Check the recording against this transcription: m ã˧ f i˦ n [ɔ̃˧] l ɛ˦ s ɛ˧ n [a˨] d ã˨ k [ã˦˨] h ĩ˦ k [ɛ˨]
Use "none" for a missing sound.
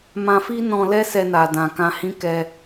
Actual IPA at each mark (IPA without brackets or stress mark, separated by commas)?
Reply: ɔ̃˧, a˨, ã˧, ɛ˦